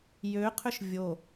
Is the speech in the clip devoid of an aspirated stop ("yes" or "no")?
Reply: no